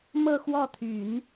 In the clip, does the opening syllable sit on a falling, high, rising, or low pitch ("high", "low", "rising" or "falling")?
falling